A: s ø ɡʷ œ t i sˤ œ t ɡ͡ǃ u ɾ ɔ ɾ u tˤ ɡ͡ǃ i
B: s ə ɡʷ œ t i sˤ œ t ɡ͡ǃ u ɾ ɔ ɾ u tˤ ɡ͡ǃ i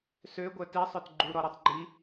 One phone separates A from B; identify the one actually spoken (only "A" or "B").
A